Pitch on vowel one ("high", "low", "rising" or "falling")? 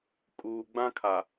low